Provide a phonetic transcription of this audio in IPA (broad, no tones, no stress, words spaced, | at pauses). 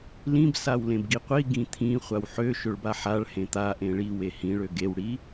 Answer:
lĩb sawlẽbɡiqʷi ɡĩt̪ʰĩ χʷawħø ʃøɭbaħaɭ hẽt̪a ʔẽɭi wehĩ ɭøɡew ɽi